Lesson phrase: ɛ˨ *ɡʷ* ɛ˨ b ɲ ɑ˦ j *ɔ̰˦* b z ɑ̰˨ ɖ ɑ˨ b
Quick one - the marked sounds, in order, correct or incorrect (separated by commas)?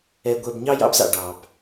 correct, incorrect